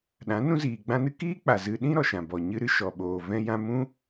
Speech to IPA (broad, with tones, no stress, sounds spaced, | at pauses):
ɗ ã˨˦ n ũ˦ z iː˨ ɡ͡b ã˦ n ɨ˦ k iː˦ k͡p a˨ z ɨ˧ ɗ ĩ˦ ɾ ɔ˨ ʃ ã˨ b ɔ˨ ɲ ɨ˧ ɾ ɨ˦ ʃ ɔ˨ ɓ oː˨ v ɛ̃˦ j ã˦ m ũ˦